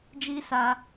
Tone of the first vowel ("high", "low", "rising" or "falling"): high